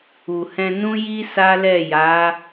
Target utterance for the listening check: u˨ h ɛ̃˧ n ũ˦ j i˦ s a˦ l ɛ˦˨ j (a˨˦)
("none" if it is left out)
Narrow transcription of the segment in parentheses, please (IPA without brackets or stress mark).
a˨˦